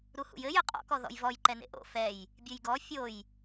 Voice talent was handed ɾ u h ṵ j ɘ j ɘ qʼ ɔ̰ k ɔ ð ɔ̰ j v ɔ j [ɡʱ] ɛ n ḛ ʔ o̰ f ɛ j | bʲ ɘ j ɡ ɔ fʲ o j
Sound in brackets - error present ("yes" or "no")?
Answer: yes